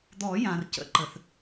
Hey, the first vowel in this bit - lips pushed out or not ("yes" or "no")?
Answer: yes